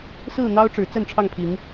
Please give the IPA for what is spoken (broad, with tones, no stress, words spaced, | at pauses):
sɹ̩˥˨n̪ɑ˦ʊ̯ ʈ͡ʂɻ̩˨˦t͡sə˥˨nʈ͡ʂʰɑ˥˨ŋpʰi˨˦ŋ